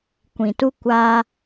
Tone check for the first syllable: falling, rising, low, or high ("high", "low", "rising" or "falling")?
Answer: low